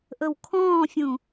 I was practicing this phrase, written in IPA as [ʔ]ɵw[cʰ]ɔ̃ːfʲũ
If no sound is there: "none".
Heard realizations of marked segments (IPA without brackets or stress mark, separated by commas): ʔ, kʰ